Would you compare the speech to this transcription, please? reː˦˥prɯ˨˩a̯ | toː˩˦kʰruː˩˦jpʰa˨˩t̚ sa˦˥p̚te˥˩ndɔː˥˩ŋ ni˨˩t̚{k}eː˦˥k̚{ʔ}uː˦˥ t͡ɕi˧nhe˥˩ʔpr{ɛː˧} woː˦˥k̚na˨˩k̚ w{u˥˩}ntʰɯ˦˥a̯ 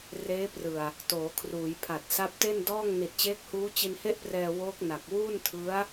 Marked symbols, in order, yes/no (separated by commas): no, no, yes, no